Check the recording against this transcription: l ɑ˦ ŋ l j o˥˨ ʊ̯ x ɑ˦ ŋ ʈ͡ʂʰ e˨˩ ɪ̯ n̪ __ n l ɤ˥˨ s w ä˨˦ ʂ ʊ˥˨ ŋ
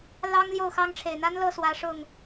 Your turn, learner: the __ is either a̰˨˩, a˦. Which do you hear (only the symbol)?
a˦